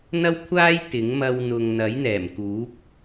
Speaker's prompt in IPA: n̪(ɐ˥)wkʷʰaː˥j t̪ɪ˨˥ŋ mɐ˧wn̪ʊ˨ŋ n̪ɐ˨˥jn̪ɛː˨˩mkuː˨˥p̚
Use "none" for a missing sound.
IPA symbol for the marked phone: ɐ˥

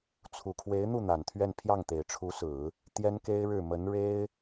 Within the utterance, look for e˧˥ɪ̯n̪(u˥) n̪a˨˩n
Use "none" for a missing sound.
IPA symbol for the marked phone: u˥˩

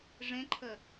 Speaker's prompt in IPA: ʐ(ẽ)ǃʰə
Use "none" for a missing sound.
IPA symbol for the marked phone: ẽ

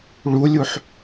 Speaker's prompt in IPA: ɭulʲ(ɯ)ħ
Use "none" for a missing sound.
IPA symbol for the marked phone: u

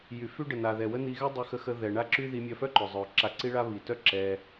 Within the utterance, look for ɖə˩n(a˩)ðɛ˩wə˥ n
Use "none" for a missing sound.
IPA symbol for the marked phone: a˩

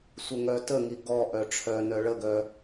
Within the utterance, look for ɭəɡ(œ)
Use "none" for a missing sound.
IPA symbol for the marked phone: œ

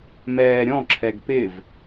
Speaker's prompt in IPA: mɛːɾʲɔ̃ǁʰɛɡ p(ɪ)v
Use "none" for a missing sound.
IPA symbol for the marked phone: ɪ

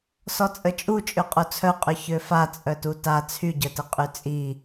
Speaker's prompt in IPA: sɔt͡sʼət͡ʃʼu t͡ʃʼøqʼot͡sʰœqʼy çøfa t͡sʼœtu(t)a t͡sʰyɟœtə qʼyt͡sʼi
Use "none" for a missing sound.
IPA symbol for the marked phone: t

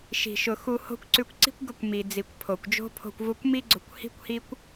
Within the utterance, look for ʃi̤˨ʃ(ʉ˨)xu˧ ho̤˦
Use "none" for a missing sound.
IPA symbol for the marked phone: ʊ˨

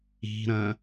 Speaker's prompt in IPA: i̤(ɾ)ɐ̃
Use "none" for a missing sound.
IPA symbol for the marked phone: ɾ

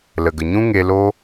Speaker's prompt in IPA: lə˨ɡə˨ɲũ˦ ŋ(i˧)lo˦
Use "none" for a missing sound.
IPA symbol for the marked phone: e˧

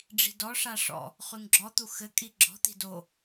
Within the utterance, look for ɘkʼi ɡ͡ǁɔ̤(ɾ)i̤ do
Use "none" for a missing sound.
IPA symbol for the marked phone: t̪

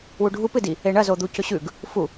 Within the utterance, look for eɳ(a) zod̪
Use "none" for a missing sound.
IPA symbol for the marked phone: ɐ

